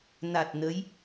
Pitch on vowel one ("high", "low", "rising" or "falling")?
low